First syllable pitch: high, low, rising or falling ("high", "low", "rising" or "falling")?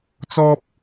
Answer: high